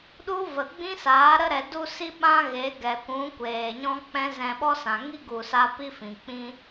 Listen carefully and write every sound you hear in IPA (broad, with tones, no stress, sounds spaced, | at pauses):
ɗ u˦ v ə˨ ɡ͡b ĩ˦ s aː˨˦ ɾ ə˧ ɾ ɛ˨ d u˧ s i˧ ɓ ã˦ ɣ e˨˦ ɡ ɛ˨ kʷ ũ˨˦ kʷ eː˨ ɲ ɔ̃˦ k͡p ɛ̃˦ z ɛ̃˧ ɓ ɔ˦ s ã˨ ŋ i˦ ɡ u˨ s a˧ p i˦ f ĩ˨ k͡p ĩ˧